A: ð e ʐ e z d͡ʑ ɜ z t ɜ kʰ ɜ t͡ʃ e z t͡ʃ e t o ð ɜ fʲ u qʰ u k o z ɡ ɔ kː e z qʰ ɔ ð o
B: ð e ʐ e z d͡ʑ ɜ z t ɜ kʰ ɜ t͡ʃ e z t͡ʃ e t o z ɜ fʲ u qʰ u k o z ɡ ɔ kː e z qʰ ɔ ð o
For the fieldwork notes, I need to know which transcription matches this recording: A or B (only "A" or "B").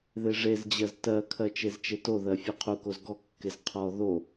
A